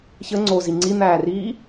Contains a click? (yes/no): yes